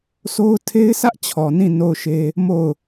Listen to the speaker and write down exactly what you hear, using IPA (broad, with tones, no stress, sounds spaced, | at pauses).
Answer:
s o˦ ʊ̯ tʰ e˦ ɪ̯ s ä˦ ʔ t͡ɕʰ ɔ˨ n ĩ˦˨ n o˦˨ ʊ̯ ʃ e˦ | m o˦˨ ʊ̯